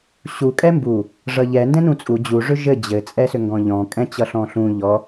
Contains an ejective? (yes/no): yes